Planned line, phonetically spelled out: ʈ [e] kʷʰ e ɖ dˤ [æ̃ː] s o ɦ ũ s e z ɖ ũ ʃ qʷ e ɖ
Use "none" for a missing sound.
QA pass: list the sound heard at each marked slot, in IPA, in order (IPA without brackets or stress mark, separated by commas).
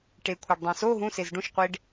e, æ̃